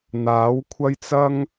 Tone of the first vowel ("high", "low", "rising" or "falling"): rising